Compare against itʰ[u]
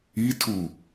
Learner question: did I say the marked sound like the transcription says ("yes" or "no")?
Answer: yes